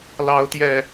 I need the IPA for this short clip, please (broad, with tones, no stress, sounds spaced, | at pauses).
l ɑ˨˦ ʊ̯ t̪ j ɛ˨˩